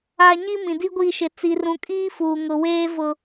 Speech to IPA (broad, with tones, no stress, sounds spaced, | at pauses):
a˦ ɲ i˦ m ĩ˨ d i˦ ɡʷ i˦˨ ʃ ɪ˨ t͡s i˨ r ũ˨ kʼ iː˦ f uː˨ ŋ ʊ˨ w eː˦ v ʊ˨